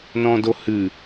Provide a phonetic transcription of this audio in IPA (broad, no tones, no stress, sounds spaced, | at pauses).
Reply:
n ɔ̃ d o h ɨ